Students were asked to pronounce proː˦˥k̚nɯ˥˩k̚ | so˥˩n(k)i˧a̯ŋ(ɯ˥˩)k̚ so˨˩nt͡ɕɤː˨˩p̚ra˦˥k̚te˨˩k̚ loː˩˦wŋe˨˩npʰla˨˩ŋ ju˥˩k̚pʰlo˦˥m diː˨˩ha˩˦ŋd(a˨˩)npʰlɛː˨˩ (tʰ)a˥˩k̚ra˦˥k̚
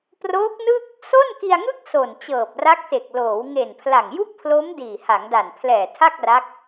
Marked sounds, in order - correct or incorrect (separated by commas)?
correct, correct, correct, correct